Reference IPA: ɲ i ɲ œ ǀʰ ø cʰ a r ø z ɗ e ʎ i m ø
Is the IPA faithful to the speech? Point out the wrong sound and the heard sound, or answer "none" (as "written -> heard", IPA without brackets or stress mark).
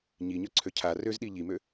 e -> i